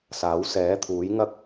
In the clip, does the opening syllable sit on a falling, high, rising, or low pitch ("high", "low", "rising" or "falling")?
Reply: rising